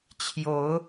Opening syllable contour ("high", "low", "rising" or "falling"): rising